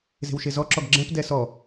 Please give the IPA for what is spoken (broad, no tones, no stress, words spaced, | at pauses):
ze̤wʃezɔǁɔɡ ɡ͡ǁɛ̃pdɛ sɔ